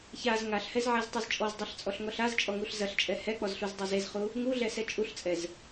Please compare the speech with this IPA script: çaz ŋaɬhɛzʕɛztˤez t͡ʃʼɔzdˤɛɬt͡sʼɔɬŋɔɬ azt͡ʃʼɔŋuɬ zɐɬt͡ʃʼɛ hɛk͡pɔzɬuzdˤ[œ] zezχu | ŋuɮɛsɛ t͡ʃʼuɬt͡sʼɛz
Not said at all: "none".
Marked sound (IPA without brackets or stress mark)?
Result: ɛ